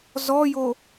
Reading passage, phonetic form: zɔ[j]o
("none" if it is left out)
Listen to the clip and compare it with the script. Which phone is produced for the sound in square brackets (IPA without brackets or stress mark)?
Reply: j